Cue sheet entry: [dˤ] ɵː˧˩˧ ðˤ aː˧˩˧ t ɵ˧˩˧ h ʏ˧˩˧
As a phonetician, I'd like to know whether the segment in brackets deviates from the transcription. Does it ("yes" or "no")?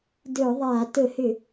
yes